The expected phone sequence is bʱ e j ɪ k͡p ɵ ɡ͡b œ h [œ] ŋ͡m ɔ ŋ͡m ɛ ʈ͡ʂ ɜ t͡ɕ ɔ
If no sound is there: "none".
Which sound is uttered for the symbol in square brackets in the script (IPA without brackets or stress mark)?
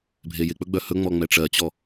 ɵ